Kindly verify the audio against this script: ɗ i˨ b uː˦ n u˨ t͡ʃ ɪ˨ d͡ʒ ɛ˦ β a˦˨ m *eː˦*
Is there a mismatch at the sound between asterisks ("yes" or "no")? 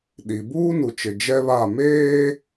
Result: no